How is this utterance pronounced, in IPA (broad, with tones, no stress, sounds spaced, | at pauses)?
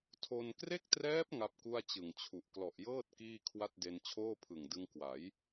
tʰ o˧ n k r e˥˩ k̚ t r ɛː˦˥ p̚ ŋ a˦˥ p̚ k u˥˩ a̯ t͡ɕ ɯ˨˩ ŋ t͡ɕʰ u˨˩ ʔ k l ɔ˨˩ ʔ j ɤː˥˩ t̚ k iː˥˩ kʰ w a˥˩ t̚ d e˧ n t͡ɕʰ oː˥˩ pʰ ɯ˨˩ ŋ d ɯ˧ ŋ k w a˩˦ j